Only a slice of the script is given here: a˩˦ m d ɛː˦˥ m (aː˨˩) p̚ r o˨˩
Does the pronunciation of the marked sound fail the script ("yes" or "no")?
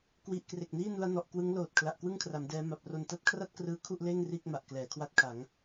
yes